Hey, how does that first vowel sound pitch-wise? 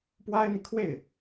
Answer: high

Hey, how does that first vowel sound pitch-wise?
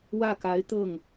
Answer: falling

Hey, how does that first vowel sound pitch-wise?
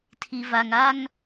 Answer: low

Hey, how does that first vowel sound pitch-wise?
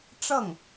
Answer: falling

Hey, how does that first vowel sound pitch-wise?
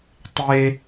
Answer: high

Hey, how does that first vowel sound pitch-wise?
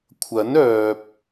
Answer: rising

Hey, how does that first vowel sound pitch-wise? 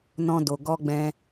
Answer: high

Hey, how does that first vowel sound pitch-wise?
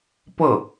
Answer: falling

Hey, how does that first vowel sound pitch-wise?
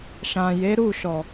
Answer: low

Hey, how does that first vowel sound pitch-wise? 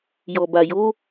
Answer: low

